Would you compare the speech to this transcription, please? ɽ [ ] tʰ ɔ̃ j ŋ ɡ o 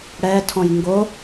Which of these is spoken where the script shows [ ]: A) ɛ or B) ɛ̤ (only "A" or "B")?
A